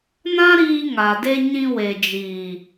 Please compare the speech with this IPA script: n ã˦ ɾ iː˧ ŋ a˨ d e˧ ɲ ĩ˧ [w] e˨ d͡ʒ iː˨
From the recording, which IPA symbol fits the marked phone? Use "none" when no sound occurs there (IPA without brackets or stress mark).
w